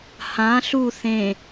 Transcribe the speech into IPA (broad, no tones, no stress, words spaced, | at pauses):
hã ɬu θẽ